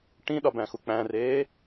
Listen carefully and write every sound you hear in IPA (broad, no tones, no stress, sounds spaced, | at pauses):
ʈ ĩ ɗ ɒ b æ̃ x u k͡p æ̃ r eː